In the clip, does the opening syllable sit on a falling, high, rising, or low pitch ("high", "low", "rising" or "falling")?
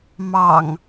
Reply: low